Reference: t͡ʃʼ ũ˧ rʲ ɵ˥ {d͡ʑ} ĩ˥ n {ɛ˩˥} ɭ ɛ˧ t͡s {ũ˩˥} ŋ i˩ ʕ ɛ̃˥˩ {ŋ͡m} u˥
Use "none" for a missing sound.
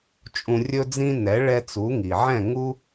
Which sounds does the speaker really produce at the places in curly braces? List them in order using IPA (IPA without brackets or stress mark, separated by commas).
d͡z, ɛ˩˥, u˩˥, ŋ